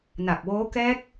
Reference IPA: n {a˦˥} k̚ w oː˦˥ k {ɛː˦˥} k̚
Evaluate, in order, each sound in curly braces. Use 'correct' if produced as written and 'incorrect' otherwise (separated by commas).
incorrect, correct